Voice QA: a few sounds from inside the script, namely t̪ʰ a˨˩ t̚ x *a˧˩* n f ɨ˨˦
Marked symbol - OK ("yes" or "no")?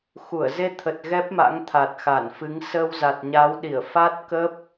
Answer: yes